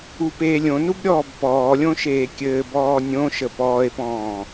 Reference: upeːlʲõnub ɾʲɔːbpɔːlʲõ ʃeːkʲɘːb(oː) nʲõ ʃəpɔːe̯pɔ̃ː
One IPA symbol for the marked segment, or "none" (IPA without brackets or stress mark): ɔː